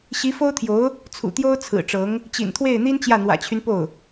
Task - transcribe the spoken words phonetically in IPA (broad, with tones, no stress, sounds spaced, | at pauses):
ɕ i˧˥ f o˥ ʊ̯ t̪ʰ j o˧˥ ʊ̯ | t͡sʰ ṵ˨˩ t̪ j o˥ ʊ̯ t͡sʰ ɹ̩˨˩ ʈ͡ʂ ɤ˧˥ ŋ | t͡ɕ ḭ˨˩ n t̪ʰ w e˥˩ ɪ̯ n̪ i˥ n t͡ɕ j ä˥˩ n̪ w ä̰˨˩ t͡ɕʰ y˦ n p o˥˩ ʊ̯